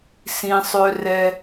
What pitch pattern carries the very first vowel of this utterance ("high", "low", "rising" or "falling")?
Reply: low